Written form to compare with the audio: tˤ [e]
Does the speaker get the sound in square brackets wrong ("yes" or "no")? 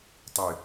yes